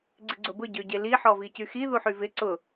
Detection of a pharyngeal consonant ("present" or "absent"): present